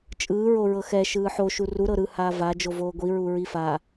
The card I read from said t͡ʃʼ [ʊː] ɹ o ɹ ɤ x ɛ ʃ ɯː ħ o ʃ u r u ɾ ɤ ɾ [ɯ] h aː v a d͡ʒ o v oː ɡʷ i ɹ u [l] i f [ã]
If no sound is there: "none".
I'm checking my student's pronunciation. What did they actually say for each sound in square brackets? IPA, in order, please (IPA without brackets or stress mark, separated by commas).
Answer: ɯː, ɯ, ɹ, a